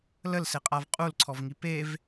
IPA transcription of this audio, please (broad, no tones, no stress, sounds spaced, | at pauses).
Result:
l ə l s e qʼ a v qʼ u l ǀʰ ɔ v ŋ i p e v